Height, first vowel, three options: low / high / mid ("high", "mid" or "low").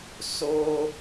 mid